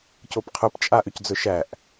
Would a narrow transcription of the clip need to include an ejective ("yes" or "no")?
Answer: yes